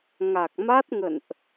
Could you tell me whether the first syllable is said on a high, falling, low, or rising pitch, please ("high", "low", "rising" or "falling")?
low